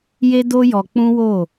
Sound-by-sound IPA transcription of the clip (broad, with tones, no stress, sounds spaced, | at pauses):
j e˦ d o˦ j ɔ˧ k͡p ũ˦ w o˦˨